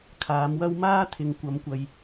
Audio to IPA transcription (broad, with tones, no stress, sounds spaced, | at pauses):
kʰ aː˨˥ m w ɐ˥ w m aː˥ t̪ʰ ɪ˨ ŋ kʷ ɐ˨˥ m kʷ ɐ˨ j